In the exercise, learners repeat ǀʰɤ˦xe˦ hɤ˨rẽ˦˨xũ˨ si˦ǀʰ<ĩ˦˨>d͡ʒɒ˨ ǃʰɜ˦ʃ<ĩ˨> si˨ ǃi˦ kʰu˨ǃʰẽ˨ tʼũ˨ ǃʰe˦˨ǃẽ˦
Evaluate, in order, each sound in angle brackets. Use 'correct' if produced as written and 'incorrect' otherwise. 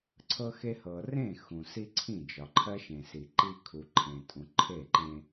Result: correct, incorrect: ẽ˨

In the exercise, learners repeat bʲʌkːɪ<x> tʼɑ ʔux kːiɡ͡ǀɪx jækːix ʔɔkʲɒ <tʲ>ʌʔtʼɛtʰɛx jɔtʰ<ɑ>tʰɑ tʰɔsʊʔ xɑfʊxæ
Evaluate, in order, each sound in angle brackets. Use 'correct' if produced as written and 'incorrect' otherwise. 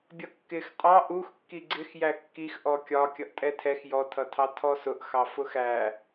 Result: correct, incorrect: kʲ, incorrect: ʌ

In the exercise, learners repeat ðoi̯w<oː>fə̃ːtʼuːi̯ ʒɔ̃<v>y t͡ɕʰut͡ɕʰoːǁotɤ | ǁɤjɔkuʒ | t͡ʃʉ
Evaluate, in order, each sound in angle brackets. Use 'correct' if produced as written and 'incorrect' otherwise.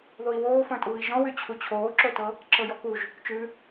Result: correct, incorrect: w

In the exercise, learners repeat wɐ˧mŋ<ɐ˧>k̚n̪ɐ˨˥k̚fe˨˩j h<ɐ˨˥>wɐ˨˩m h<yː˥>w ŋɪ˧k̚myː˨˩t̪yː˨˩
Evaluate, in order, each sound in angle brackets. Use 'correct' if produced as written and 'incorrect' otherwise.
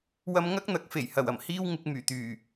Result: incorrect: ɐ˥, incorrect: ɐ˨˩, incorrect: iː˥

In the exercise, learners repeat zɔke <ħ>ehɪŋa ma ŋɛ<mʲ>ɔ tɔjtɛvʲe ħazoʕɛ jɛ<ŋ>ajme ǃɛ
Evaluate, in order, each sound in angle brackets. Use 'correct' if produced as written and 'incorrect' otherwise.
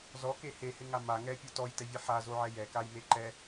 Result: incorrect: h, incorrect: pʲ, incorrect: k

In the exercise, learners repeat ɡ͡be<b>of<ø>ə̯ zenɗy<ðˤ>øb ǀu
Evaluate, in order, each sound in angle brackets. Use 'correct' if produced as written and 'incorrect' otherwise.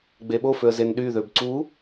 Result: incorrect: ɓ, correct, incorrect: ð

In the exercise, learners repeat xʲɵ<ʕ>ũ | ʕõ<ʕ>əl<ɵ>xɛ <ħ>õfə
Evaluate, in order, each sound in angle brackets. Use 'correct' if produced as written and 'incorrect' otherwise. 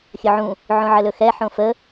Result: correct, correct, correct, correct

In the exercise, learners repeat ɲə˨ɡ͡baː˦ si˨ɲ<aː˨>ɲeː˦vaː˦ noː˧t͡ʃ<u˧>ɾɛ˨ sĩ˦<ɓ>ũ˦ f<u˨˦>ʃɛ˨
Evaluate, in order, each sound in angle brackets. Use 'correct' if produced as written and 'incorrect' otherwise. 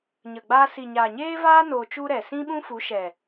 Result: correct, incorrect: u˦, correct, correct

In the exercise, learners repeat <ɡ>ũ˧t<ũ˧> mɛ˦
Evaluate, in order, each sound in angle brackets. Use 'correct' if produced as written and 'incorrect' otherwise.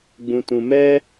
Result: incorrect: ɡ͡b, correct

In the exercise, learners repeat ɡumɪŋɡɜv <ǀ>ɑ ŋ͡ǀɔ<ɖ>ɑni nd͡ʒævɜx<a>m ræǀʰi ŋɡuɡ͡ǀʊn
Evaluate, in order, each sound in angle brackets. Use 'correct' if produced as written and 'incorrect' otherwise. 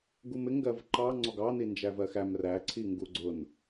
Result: incorrect: ǃ, incorrect: ɡ, incorrect: æ

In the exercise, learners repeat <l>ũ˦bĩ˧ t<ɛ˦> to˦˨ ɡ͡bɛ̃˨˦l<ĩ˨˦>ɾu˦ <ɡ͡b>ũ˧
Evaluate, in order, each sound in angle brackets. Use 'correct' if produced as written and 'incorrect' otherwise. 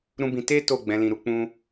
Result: incorrect: ɾ, incorrect: e˦, incorrect: ĩ˧, incorrect: k͡p

